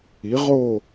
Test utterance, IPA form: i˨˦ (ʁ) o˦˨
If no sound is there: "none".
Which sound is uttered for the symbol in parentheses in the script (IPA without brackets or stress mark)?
ʁ